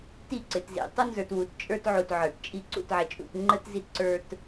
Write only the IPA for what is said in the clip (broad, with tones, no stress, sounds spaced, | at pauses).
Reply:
t i˦˨ ǀ ɪ˨ t z ḭ˨ tˤ ʊ˦ n z ə˞˨ t w u˨ t t͡ʃʼ ə˞˦ t ʕ u˨ t ʕ ə˞˨ t t͡ʃʼ i˦˨ ǀ ṵ˦˨ t ʕ ɛ˨ t͡ʃʼ ṵ˦˨ t ŋ͡ǃ ə˦ t z i˦ t ǀ ə˞˦ t